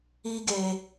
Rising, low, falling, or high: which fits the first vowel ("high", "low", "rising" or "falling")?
high